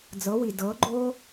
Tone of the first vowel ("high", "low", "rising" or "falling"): rising